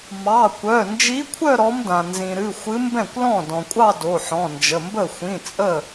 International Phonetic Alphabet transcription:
m ɑ˩˧˩ kʷ œ˩˧˩ n d͡ʒ i˧˥ kʷʰ œ˥˧ ɾ ɔ˧˥ m d ã˩ n z ĩ˩ ɾ ɨ˩˧˩ xʷ ɨ˧˥ m b ɛ̃˥˩ kʷ l ɔ̃˥˩ d ɔ̃˩ kʷʼ ɑ˥˧ d o˩˧˩ ħ ɔ̃˩˧˩ n d͡ʒ ə˩˧˩ m b ə˥˩ xʷ ĩ˩˧˩ t͡sʼ ə˥˩

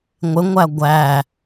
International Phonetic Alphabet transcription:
ŋʷ ɪ ŋʷ æ ɡʷ æ

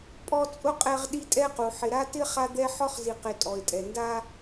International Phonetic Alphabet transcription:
pʼ ɔ˦ t͡sʼ ʊ˥ qʼ ɛ˦ ʁ ɗ i˦ tʼ ɛ˥ q u˩ ħ ɪ˨ ɾ a˥ t ɪ˥ χ a˥ d̪ ɛ˥ ħ ɔ˥ χ z i˨ q ɪ˨ tʼ ɔ˩ ɪ̯ tʼ ɛ˩ n d a˦

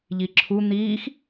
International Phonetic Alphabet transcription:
ʎ i ǁʰ u n̪ iː x

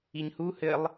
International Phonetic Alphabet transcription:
i ɲ h u h ɘ lˠ

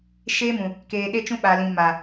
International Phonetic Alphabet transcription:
ʃ eː˦ m ũ˨ | k eː˨ ɗ e˦ t͡ʃ ũ˦ ɓ aː˨ l ĩ˨ m aː˨

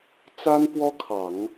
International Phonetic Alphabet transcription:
t͡s a˥ n p w ɔ˥ kʰ ɑ˨˩˦ ŋ

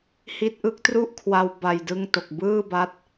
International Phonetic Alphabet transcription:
h i˥˩ t̚ ʔ ɯ˦˥ k̚ t r u˥˩ ʔ kʰ w a˧ w b a˧ j d ɯ˥˩ ŋ t o˨˩ k̚ b ɯː˥˩ b a˦˥ t̚

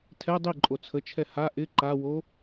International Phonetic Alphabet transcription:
tʰ ɛ dˤ i ǃʼ o t͡sʰ ə t͡ʃʰ ɛ h a ʔ ɪ ǃ a w o

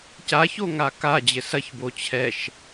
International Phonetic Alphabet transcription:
c a ç o ŋ a k a d͡ʑ ɘ s ɐ ç b o t͡ɕʰ ɛ ʃ

